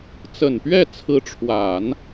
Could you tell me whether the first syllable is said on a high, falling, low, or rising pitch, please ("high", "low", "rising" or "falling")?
low